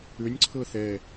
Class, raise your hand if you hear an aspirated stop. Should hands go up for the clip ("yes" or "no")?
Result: yes